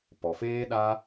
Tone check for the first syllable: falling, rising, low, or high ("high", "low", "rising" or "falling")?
low